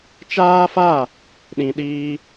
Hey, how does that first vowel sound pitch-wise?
high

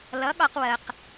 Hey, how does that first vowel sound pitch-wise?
rising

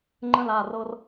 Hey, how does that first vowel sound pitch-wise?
falling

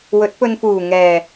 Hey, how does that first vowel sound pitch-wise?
rising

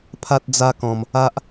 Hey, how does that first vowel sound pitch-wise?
high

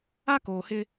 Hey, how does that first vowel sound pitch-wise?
high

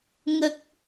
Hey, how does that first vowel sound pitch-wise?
low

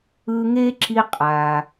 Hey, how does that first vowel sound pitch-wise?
high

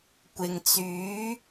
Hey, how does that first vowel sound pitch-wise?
low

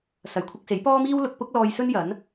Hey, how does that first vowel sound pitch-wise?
low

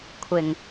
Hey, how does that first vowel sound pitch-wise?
low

